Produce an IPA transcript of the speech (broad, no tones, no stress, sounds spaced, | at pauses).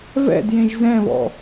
v ɛ̰ d j ẽ ʒ z ɛ̃ β ɔ̰